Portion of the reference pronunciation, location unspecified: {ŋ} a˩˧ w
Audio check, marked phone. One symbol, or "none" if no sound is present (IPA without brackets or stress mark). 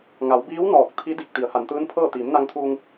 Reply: ŋ